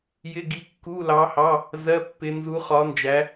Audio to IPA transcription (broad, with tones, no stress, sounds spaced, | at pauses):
j ɪ˧˥˧ ɡ i˧˥ kː u˧˥˧ l ɑ˧˥ h ɑ˧˥˧ | z ɜ˧˥˧ pː ɪ˧˥ n z u˧˥ χ ɒ˧˥ n d͡ʒ æ˧˥